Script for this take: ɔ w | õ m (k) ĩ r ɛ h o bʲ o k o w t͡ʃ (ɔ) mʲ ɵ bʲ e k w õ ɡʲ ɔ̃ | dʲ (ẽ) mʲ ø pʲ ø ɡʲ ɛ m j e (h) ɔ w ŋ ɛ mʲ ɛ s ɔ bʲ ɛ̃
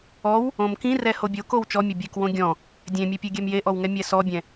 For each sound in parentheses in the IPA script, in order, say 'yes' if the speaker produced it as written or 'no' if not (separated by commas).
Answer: yes, yes, yes, no